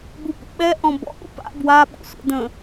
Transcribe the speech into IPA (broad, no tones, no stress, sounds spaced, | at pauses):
b u p ṵ ɓ ɛ ʔ ɔ̃ b ɔ̰ ʔ ṵ p a̰ b w a ɓ ṵ sʷ ɛ̰ d ə̃